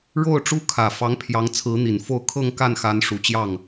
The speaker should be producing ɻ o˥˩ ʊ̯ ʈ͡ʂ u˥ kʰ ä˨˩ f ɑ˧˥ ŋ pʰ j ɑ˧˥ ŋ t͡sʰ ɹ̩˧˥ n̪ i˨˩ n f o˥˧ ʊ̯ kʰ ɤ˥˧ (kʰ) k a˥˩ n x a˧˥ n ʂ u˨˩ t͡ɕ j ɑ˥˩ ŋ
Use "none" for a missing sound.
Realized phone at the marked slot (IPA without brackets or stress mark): ŋ